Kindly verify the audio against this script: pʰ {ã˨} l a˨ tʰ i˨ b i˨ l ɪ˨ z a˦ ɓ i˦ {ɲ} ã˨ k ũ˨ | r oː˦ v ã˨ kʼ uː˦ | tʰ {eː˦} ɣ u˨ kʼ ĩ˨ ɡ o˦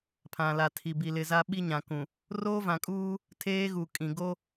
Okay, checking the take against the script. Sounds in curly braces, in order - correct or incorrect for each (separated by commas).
correct, correct, correct